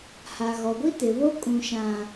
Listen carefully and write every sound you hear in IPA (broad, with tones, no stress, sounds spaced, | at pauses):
h a˨ ɣ ɔ˨ ɡʷ i˦ t ɪ˨ β o˦ kʼ ũ˨ ʃ ã˨